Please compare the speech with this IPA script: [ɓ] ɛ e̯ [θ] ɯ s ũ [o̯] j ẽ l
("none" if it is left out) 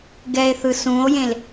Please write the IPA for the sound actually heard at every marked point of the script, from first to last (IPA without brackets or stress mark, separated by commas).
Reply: ɡ, θ, o̯